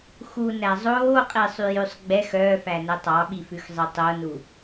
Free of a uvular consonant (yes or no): no